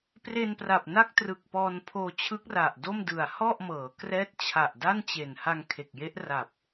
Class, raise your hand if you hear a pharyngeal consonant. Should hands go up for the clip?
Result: no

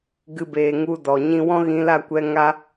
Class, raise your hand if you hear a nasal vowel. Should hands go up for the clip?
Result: yes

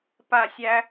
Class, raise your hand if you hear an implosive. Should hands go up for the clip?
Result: no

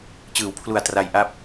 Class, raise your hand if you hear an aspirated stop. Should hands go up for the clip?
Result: yes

